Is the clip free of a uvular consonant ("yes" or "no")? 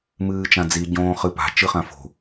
no